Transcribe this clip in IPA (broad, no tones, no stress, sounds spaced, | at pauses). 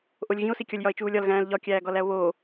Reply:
ʔ o lʲ ɣ ĩ o̯ s i kʲ ɒ lʲ j ɒ e̯ t͡ʃ uː lʲ ɒ l ɣ æ̃ː l ʎ ɒ kʲ æː ɡ ɒ l æ o̯ β oː